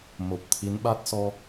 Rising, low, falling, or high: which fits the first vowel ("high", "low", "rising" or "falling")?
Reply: low